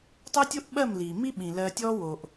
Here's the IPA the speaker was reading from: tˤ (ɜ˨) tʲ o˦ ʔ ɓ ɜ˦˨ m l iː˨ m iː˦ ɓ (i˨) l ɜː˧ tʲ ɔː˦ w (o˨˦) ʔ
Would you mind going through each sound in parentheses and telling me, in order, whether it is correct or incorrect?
incorrect, incorrect, incorrect

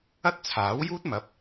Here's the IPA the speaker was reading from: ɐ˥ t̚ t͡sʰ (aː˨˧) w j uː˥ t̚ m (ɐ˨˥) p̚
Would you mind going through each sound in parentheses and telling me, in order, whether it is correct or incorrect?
incorrect, correct

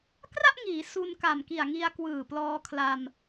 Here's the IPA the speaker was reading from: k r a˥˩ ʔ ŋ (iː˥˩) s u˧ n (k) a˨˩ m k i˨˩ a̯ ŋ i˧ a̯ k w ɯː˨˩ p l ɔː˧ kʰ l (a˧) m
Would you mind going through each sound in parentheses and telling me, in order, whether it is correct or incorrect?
incorrect, correct, correct

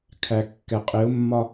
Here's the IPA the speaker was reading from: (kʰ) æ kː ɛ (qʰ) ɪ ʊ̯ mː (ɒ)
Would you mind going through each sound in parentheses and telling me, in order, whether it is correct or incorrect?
correct, incorrect, correct

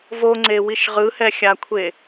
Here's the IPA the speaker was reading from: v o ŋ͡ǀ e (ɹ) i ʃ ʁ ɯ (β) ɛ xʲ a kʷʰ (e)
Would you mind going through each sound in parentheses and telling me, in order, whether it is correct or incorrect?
incorrect, incorrect, correct

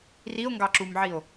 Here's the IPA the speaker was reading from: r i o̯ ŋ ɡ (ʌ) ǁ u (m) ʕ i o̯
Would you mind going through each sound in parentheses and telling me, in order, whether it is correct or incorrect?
incorrect, correct

